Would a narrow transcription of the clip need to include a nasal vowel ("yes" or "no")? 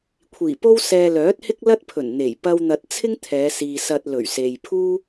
no